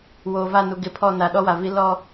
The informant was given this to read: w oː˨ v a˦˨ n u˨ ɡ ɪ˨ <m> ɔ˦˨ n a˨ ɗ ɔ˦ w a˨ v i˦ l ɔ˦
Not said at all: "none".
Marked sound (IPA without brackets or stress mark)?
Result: pʰ